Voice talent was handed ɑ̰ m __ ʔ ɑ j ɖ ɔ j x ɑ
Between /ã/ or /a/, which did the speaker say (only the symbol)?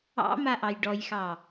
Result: a